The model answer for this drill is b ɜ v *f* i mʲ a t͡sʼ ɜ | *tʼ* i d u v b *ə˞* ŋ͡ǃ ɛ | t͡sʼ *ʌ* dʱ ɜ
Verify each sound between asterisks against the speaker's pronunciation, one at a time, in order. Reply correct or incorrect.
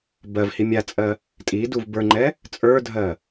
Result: incorrect: h, correct, correct, incorrect: ə˞

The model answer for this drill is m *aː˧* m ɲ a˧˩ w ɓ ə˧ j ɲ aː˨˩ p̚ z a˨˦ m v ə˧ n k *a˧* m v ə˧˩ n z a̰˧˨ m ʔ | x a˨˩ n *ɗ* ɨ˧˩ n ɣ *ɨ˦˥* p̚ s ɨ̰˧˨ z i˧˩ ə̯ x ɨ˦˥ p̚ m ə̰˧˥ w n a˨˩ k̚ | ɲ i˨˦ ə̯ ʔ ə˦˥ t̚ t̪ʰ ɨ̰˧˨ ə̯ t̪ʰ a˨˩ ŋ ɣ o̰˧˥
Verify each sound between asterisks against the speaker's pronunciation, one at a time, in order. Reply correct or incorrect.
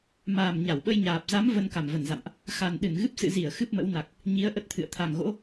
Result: incorrect: aː˨˩, incorrect: a˧˩, correct, correct

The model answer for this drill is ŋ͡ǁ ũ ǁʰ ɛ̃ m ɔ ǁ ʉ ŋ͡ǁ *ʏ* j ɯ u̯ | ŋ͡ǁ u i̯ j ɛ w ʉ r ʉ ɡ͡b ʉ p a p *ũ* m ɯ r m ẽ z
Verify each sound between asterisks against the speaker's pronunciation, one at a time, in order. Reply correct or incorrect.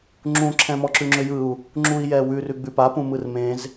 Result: correct, correct

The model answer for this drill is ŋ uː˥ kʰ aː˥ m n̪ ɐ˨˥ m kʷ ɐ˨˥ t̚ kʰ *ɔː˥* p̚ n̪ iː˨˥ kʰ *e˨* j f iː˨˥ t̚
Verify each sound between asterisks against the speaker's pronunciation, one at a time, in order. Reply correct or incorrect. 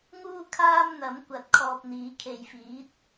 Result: incorrect: ɔː˧, correct

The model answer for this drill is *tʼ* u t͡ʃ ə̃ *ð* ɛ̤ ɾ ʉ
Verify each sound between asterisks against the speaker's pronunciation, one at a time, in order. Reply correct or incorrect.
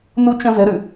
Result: incorrect: n, incorrect: z

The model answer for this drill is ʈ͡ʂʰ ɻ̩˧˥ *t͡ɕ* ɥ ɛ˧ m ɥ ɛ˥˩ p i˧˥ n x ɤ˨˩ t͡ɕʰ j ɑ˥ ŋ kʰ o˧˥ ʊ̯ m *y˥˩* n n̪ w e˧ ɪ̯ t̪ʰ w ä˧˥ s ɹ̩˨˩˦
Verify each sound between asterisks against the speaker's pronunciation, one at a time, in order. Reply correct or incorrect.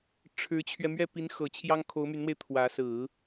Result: incorrect: t͡ɕʰ, incorrect: y˧˥

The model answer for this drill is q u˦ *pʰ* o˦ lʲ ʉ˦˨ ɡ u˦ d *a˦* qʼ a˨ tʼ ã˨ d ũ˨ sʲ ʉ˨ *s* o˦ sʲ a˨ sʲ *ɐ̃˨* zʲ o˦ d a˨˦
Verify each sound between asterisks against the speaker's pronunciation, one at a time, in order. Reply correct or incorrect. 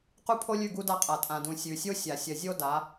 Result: correct, correct, incorrect: sʲ, incorrect: ɐ˨

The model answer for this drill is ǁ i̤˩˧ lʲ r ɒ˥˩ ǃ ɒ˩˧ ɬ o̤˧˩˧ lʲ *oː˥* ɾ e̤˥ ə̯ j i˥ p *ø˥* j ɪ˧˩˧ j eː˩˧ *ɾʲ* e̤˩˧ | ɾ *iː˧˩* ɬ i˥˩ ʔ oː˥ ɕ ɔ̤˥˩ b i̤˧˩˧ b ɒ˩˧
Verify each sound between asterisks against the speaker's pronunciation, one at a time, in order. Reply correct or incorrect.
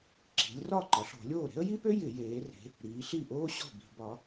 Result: incorrect: oː˥˩, correct, incorrect: r, incorrect: iː˩˧

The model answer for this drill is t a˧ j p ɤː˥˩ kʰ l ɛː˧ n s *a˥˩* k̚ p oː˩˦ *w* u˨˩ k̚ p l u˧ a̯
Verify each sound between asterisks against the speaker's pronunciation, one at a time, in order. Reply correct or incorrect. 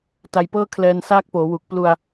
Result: incorrect: aː˥˩, correct

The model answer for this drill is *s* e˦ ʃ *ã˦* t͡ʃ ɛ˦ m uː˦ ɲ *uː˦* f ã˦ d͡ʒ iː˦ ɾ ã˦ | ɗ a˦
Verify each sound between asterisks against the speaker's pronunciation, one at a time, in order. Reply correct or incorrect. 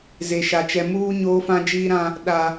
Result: incorrect: z, incorrect: a˦, incorrect: oː˦

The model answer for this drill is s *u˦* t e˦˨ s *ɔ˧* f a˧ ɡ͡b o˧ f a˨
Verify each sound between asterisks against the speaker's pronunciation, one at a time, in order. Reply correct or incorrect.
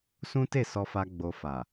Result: incorrect: ũ˦, correct

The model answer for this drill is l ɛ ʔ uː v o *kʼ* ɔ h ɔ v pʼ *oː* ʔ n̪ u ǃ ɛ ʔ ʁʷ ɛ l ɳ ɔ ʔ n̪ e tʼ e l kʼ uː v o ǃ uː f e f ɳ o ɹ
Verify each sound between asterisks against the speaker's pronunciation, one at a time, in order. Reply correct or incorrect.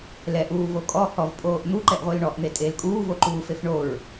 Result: correct, correct

